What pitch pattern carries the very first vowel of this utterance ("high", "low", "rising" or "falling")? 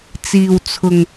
low